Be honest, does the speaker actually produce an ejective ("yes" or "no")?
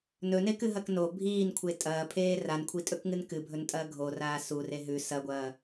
yes